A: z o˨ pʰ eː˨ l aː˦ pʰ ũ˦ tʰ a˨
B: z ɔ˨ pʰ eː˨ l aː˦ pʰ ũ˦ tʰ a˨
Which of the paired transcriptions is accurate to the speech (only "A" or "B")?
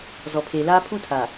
B